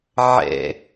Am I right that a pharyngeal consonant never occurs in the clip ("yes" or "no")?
no